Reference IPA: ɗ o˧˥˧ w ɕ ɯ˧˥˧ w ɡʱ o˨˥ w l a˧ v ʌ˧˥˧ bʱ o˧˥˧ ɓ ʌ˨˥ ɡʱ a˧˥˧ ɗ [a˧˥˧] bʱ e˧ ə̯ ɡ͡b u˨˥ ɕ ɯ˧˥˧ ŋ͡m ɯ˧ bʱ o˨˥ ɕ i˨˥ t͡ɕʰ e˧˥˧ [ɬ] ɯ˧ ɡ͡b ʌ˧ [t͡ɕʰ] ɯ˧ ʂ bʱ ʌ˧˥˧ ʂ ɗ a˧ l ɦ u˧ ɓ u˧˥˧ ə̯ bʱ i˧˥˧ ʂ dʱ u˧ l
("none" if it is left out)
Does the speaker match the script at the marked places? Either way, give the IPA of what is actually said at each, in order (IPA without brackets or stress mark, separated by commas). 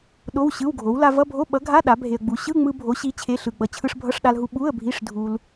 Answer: a˨˥, ɬ, t͡ɕʰ